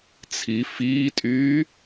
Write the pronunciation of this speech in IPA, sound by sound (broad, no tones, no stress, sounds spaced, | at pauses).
t͡sʰ i f iː tʼ yː